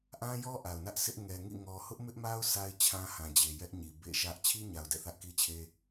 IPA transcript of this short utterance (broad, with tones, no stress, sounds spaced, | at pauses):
ʔ ã˦ j ɔ˦ ʔ a˨ ʊ̯ n ä˦ ʔ s ɪ˦ ʔ ŋ ɛ˨ ŋ ḭ˦˨ ŋ ɔ˨ h ʊ˦ ʔ m ɪ˦ ʔ m a˦ ʊ̯ s a˦ ɪ̯ t͡ɕʰ ã˦ h ã˨ d͡ʑ e˨ j ɛ˦ ʔ ɲ i˨ b ḛ˦˨ ʃ ä˦ ʔ t͡ɕʰ i˦ ɲ a˨ ʊ̯ d ɛ̰˦˨ θ ä˦ ʔ k i˦ t͡ɕʰ e˦